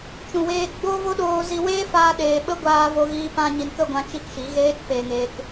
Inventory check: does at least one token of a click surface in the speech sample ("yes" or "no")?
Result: no